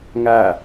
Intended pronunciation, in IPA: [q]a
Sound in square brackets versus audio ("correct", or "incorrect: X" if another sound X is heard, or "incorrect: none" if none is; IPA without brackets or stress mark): incorrect: ŋ